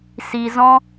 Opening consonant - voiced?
no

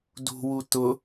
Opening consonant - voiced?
yes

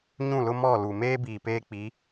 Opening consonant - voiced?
yes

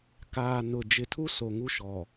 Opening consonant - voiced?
no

